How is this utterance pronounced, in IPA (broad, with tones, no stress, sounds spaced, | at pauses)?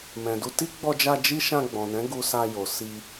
m ɛ̃˨ d u˧ t i˦ ɡ͡b ɔ˧ d͡ʒ a˧ d͡ʒ i˦ ʃ ã˧ ɡ͡b ɔ̃˨ n ɛ̃˨˦ ɡ u˧ s a˧ j o˨ s i˧